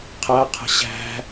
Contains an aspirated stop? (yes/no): yes